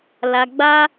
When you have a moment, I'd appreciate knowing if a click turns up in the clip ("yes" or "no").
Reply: no